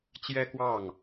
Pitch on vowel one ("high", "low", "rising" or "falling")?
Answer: high